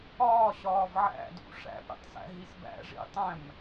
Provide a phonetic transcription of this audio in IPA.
ɒːɕɒːv ʕæ̰dṵ ʂæ̰pɾḭtˤsæ̰ɦis bæ̰ʐḭtˤæ̃m

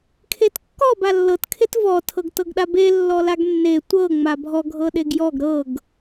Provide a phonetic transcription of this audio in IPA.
kʰetkːɔ balːɤt kʰetvɔ tʰɤɡtɤɡɗabe lːɔlaɡnːe tʷɤ ŋ͡mabʱɔ ɡʱɤɗeɡjɔɡ ɾɤɡ

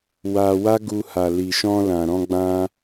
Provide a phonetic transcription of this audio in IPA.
wa˧wa˦ɡu˧ ha˨li˨ʃɔ̃˧ lã˨ɾɔ̃˧ɡ͡bã˧

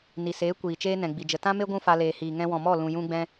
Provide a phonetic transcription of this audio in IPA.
ni˨seː˨˦ kʷiː˨t͡ʃeː˦ nɛ̃˨ɡ͡bi˨d͡ʒə˧ tã˦me˦ ɡʷũ˦fa˧ leː˨hiː˨ ŋɛ̃˧wɔ̃˨mɔ˦˨ lũ˨jũ˧ɡ͡bɛ̃˧

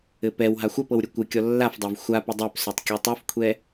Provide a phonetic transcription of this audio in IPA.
ɘpɛwɦa xʷœpɤw ɾʲɘkʷɘkʲɔ lːafdˤœv xʷa pədˤɛpsotˤ kʲotˤofkʷʰɛ

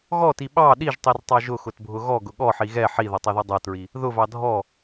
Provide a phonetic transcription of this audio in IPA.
ɣɔti ɓɑ ɗiʒtˤirtˤɑ ʒʊxʊtbʱʊ ɣɔɡʊ ɠɔħi ɣɛ ħiðʌtˤɑðɔ dˤʌtɹi | ðʊvɑ dʱɔ

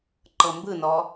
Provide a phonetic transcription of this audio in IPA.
ǃɤmbɯnɔ

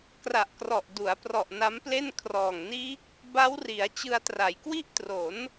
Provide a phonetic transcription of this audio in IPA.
kra˨˩ʔkrɔ˨˩ʔ du˩˦a̯ prɔ˨˩ʔ na˦˥mple˥˩n kʰrɔː˨˩ŋniː˦˥k̚ | ba˦˥wri˩˦a̯ t͡ɕɯ˧a̯tra˩˦jkwi˥˩ʔtro˩˦n

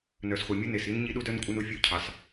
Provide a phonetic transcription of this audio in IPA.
nœ˨sχʷɛ˨mʲʊ˦ ne˨si˦n ɲi˦ɗu˦dœ˦nkʷʼɐ˦n u˨fʲu˦˨cʰɑ˨s

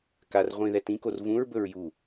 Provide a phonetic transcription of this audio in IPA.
kar ʁʷĩðɛ tĩkor vũɹbɵɹ ju

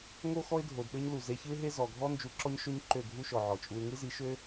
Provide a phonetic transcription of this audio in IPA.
ŋo˦ xɔ˦ɪ̯dʱo˨dɗø˦ɲ lu˨ ze˧çɯ˦ɪ̯ɦe˦ zɔ˨ɡʱɔ˦ nd͡ʒu˧ǁɔ˦ɲʃo˦ɲ ǃø˦˨ɡʱu˦ʃɔ˨ ʕɔ˨t͡ʃʼu˧ɪ̯ ŋɯ˦zi˨˦ʃø˦

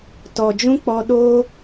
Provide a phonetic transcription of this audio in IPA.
tɔ˨d͡ʒũ˦k͡pɔ˧ ɗoː˦

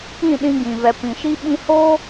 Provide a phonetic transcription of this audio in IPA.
ĩ˦˨ɗĩ˧ɡĩ˨ vɛ˨pĩ˨ʃi˧ ɓĩ˦ ho˦

